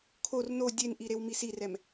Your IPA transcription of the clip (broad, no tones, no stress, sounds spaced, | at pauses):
kʰ o r n o dʲ e n ʔ i ɾ e w m i s i r ɛ m